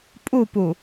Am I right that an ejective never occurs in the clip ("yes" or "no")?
no